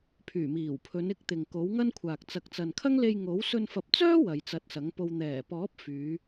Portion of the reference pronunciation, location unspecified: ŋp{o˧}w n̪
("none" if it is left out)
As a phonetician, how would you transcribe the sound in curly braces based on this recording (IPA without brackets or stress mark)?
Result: o˧